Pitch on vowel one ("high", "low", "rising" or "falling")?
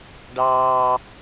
low